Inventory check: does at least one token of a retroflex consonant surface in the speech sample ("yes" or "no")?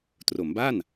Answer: no